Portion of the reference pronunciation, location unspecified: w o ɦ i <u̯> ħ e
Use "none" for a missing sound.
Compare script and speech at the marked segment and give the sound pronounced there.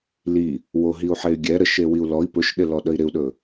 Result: u̯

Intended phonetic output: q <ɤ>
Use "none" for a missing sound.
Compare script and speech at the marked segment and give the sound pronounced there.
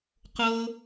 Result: ɤ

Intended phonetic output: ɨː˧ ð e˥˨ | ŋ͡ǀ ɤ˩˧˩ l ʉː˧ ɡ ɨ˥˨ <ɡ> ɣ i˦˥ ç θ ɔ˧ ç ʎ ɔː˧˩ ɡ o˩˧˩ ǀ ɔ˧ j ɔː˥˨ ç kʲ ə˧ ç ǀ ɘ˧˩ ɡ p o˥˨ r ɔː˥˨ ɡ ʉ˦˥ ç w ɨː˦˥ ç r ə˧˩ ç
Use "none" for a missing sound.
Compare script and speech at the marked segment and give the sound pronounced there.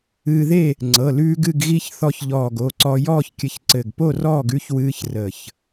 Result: ɡ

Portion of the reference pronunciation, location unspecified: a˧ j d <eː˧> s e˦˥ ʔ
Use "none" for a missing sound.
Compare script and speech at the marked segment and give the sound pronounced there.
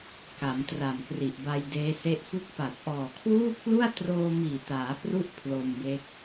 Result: eː˦˥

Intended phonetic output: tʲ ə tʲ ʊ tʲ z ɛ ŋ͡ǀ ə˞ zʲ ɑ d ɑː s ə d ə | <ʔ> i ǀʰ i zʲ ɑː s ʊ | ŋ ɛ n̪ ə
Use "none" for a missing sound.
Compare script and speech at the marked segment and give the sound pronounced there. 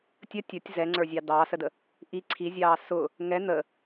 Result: ʔ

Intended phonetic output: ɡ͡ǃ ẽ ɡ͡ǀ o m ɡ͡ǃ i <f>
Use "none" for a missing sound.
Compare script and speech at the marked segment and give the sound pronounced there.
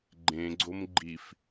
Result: f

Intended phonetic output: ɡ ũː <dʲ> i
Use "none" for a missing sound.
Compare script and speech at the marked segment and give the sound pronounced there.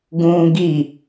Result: ɡ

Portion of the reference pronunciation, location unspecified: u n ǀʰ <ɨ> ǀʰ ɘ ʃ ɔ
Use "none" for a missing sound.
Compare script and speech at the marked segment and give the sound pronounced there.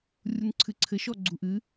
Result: ɨ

